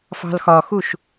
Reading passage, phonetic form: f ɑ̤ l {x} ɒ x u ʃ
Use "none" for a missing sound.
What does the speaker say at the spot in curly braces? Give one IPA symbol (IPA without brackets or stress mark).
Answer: x